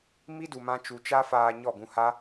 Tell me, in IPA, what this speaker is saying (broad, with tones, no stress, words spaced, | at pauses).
mi˦du˨mã˧ t͡ʃu˨t͡ʃa˦faː˧ ɲɔ˦˨ɡũ˧ha˦